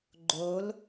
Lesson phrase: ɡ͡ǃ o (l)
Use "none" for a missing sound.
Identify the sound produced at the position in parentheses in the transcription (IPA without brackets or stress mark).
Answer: l